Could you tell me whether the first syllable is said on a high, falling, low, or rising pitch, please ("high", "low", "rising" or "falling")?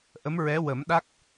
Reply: rising